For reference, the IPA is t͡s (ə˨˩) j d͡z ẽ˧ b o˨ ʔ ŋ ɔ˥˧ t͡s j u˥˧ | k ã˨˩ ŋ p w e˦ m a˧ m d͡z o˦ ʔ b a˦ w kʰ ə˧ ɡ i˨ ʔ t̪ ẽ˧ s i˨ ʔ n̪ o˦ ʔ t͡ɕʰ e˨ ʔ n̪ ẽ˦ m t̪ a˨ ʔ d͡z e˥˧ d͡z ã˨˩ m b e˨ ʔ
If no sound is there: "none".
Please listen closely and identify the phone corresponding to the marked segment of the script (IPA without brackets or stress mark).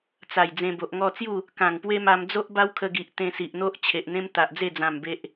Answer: a˨˩